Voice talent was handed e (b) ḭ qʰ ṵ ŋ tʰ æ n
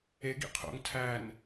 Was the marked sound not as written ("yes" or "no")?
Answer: yes